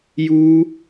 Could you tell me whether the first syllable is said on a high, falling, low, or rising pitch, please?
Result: high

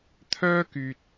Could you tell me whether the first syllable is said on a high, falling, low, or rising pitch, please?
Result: high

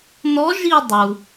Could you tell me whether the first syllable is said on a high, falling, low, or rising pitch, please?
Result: rising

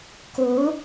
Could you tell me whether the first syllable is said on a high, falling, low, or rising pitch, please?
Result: rising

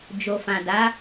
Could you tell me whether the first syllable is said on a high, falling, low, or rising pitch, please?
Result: low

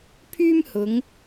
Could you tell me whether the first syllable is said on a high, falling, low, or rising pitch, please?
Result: high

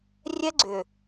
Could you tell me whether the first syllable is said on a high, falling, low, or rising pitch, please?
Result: high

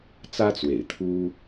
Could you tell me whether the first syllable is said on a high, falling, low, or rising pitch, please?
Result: high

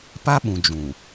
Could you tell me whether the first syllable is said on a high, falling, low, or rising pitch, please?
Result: high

